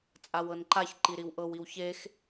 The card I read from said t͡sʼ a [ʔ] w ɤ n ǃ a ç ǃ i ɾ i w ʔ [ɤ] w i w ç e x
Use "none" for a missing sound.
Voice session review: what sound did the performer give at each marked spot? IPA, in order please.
none, ɤ

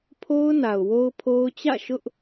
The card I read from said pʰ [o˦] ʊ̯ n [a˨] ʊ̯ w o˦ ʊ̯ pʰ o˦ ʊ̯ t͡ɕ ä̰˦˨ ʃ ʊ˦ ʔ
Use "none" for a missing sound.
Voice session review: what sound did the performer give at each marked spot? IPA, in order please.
o˦, a˨

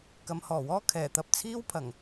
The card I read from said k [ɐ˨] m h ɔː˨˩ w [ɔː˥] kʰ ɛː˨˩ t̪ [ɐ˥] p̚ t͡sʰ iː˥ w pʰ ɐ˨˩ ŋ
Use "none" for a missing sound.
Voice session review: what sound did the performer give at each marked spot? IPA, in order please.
ɐ˨˧, ɔː˥, ɐ˧

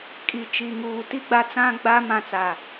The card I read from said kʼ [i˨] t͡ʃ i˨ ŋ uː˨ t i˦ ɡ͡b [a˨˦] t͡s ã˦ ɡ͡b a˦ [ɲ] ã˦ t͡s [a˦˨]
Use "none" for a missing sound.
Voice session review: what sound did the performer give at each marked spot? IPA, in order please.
i˨, a˦, m, a˦˨

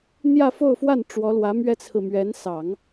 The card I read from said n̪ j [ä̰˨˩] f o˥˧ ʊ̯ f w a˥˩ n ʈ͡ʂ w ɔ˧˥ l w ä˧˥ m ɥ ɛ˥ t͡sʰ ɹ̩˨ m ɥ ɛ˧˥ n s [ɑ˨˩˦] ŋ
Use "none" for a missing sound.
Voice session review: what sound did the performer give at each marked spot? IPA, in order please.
ä˥˧, ɑ˨˩˦

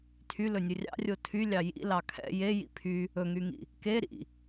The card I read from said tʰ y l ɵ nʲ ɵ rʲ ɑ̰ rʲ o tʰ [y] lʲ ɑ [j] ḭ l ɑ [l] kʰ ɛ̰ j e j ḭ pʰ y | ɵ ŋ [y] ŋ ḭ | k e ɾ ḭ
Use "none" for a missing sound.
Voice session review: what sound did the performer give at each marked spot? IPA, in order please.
y, j, none, y

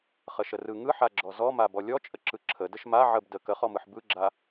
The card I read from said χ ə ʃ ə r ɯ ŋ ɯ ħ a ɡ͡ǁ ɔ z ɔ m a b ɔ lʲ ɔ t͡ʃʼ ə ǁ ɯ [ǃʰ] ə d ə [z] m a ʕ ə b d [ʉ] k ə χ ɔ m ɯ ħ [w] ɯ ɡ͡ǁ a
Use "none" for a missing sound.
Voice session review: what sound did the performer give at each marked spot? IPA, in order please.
ǁʰ, ʃ, ə, b

